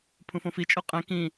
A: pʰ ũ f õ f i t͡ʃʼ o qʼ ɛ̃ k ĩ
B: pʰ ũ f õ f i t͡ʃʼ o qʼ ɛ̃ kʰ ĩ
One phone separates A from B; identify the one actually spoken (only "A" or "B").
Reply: A